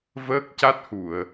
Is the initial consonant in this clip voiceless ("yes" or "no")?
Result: no